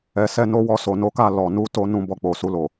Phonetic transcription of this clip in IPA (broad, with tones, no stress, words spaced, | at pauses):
ɛ˨ sɛ˧no˧wɔ˧ so˨no˨˦ka˦˨ lɔ˨ nu˨˦to˧ nũ˧bɔ˧ k͡po˨su˧lo˨